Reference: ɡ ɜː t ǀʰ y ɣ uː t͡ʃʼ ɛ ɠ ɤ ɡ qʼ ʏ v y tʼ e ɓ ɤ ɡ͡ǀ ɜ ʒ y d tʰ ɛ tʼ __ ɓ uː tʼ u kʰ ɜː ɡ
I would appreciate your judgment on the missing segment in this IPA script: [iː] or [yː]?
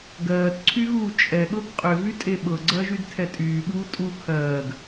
yː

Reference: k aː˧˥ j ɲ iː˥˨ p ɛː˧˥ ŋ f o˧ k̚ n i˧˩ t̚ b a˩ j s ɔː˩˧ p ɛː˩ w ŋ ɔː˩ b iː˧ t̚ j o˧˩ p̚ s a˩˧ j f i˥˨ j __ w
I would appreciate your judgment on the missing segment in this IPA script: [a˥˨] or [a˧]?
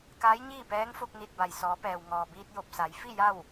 a˥˨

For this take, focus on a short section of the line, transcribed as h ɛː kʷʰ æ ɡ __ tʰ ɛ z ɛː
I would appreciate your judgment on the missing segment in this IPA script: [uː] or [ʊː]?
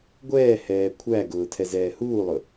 ʊː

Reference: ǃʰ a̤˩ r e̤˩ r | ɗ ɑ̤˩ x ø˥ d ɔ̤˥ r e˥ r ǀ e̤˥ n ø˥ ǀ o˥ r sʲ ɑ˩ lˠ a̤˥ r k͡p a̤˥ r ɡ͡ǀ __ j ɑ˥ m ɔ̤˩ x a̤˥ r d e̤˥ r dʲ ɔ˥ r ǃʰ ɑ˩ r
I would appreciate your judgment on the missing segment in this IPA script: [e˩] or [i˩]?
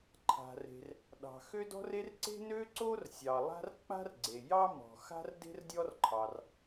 e˩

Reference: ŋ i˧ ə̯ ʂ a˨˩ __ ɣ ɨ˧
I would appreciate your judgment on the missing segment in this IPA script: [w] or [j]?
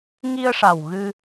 w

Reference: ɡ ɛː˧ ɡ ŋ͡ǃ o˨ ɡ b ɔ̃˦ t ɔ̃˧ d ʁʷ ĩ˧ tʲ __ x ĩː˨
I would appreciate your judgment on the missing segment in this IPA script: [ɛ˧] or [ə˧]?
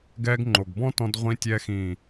ɛ˧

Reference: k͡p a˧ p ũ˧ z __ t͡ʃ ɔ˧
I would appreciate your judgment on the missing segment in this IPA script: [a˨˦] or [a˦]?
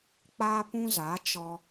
a˨˦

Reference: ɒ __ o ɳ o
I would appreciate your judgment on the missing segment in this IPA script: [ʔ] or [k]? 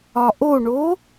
ʔ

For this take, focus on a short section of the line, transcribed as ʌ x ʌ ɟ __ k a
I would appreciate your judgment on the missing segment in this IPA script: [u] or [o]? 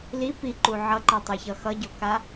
o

